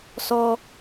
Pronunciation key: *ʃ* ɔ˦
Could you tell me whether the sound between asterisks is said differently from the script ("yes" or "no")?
yes